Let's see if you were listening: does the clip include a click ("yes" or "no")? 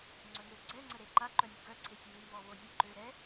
yes